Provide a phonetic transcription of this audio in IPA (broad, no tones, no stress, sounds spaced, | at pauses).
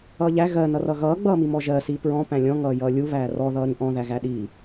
ʌː ʎ æ ɣ ɜ n ʌ r ʌ ɣ ʌː ɡ͡b ʌː m i m ɔ ʒ ɜ s iː p ɹ ɔ̃ p æ̃ lʲ ɔ̃ ŋ ʌː j ʌː lʲ u β æː r ɔ ð ʌː ɾ ĩ ʔ ɔ̃ ð æ ɣ æ ɗ i